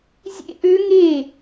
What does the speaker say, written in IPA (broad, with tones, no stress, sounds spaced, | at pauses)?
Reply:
zʲ ḛ˦˥ ʔ ø˦˥ ŋ e˥˨